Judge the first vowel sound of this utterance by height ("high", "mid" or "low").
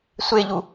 mid